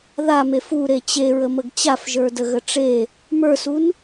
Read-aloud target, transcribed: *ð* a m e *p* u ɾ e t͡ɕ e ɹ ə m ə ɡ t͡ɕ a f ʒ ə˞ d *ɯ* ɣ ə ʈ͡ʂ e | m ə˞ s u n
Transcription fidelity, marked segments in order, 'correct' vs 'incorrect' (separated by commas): correct, incorrect, incorrect